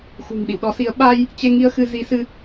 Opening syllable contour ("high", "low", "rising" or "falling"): low